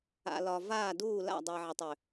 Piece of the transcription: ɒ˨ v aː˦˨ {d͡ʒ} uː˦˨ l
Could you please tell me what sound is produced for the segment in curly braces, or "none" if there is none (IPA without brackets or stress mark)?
d